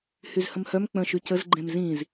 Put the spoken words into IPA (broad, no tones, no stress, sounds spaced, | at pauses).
h y z h ə̃ m h œ m k͡p ə̃ ʃ y c ə z ɡ͡ǃ ẽ m z ĩ z